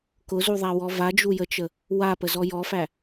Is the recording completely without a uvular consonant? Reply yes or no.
yes